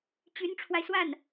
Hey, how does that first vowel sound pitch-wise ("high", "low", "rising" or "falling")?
rising